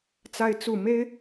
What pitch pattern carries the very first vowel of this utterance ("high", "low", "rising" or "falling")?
high